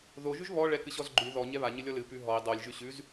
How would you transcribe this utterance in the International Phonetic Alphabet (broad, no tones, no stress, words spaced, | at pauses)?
ðo ʒʉʒβɔ ɭɛkɨɕɔzɡ͡ǃʉ ðɔ ɲɛβa ɲɨlʲɔlɨ pʉɦɔi̯ dˤolʲ ʒʉɕʉz